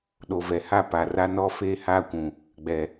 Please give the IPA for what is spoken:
ɗ o˨ v ɛ˨ h a˦˨ p a˨ r a˦ n ɔ˦ f eː˦ h aː˦ kʷ ũ˨ | ɡ͡b ɛ˨

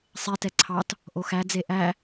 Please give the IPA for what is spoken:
sˤ e t ɛ ǀʰ ɑ t | ʔ o x æ d͡z e ʔ æ

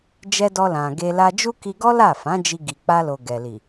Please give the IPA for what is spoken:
d͡ʒ ɛ˧ d ɔ˧ l ã˨ ɡ e˧ l a˧ d͡ʒ u˦ k i˧ ɡ ɔ˦ l a˦˨ f ã˨˦ d͡ʒ i˧ ɡ i˨ k͡p a˧ l o˨ ɡ ɛ˨ l i˨

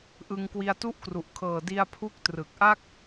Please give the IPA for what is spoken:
ʔ ɯ˧ ŋ k w i˧ a̯ t u˦˥ ʔ k r u˨˩ ʔ kʰ ɤː˨˩ d i˧ a̯ pʰ u˦˥ k̚ t r ɯ˨˩ k̚ ʔ a˥˩ k̚

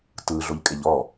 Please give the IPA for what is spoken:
t ɯ ɮ o ʎ kʼ e ʎ ɔ

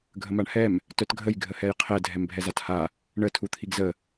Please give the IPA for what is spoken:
ɡʱ ə m a ɳ h ɛ m | t œ t ɡʱ ə j ɡʱ ə h ɛ j qʰ ɛ dʱ ɛ m bʱ ɛ z a t h a | ɳ ə tʰ u t̪ʰ i ɡ z ə

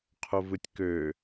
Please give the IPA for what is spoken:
qʰ o v ɯ tʲ k ø

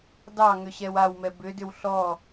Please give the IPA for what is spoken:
d ɑ ŋ ʏ ɕ ɛ w a w m ɛ b ʏ d ʏ w ɬ ɔ

